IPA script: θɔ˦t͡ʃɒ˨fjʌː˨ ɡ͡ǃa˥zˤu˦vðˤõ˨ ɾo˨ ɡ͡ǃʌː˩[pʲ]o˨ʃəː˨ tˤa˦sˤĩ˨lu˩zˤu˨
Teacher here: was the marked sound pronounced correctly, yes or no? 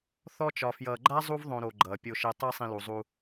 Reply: yes